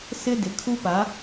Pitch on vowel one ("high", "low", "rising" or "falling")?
high